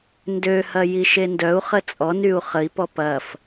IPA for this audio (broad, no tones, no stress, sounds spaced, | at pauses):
n d ø h ɐ j i ʃ e n d œ u̯ χ ə t͡sʼ ɔ n y u̯ χ ə i̯ p ɔ p ɐ f